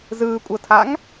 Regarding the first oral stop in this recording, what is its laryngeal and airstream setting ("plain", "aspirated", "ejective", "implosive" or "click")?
ejective